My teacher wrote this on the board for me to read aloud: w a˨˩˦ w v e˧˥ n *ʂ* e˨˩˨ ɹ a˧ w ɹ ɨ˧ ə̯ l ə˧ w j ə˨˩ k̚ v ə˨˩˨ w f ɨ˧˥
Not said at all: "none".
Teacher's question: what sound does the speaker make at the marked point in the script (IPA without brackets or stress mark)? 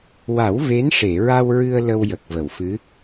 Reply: ʂ